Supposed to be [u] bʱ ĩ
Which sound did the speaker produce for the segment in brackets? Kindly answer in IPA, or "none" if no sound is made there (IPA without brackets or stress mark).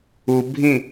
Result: u